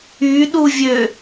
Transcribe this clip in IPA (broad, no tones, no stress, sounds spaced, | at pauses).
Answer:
y ɗ u vʲ ø